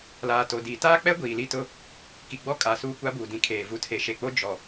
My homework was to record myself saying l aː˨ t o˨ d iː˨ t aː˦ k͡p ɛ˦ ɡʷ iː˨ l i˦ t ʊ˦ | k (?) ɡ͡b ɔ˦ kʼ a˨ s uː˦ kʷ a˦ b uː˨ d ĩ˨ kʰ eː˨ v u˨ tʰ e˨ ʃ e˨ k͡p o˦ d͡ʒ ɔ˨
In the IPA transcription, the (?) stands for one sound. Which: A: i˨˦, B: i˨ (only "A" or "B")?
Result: B